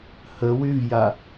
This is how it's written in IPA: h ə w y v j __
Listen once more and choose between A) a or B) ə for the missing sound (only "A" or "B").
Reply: A